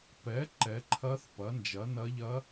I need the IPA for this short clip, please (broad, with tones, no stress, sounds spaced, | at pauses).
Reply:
p ɛ˩˥ ǃ ɛ˩˥ ǃʰ ɐ˧˥ θ p ɐ˩˥ n d͡ʒ ɐ˩˥ n ɐ˧˥ ʎ ɐ˧˥